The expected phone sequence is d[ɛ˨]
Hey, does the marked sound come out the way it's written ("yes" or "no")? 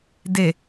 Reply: no